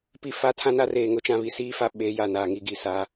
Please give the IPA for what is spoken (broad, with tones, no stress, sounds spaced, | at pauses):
p i˦˨ f a˦ tʰ ã˦ n a˦ r eː˨ ŋ ʊ˦ t͡ʃ ã˦ β i˨ s iː˦ f a˦ ɓ eː˨˦ j a˨ n aː˨ ŋ i˦ ɡ i˨ s aː˦